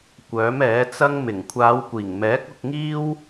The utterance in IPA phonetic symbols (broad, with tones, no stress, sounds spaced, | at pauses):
kʷ œː˨˥ m ɛː˨˥ t͡s ɐ˥ ŋ m ɪ˨˩ ŋ kʷʰ aː˨˧ w kʷ iː˨˩ ŋ m ɛː˨˥ k̚ ʊ˧ k̚ ŋ iː˥ w